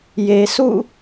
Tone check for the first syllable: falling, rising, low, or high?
low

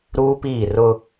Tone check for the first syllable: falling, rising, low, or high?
high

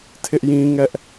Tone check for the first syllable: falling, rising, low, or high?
high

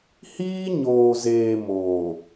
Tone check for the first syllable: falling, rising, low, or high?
high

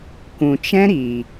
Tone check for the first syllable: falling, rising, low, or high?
low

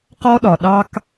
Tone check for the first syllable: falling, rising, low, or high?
high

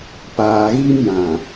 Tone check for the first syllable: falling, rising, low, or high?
low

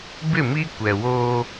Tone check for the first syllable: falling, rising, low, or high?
falling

